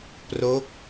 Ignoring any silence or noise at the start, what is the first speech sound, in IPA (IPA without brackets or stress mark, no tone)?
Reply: p